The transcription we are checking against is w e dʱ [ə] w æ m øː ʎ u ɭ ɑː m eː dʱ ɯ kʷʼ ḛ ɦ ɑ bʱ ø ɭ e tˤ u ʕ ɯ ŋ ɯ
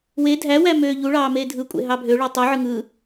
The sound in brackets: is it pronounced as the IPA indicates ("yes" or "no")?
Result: no